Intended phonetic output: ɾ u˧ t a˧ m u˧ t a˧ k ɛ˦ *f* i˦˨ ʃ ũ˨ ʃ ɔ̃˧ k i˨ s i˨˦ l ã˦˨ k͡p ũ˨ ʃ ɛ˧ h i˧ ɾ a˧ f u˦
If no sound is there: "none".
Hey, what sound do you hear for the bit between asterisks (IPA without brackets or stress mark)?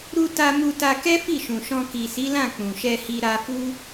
f